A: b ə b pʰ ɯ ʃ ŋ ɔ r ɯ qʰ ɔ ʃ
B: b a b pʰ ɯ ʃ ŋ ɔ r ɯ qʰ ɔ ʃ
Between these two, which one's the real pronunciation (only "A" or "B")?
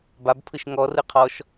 B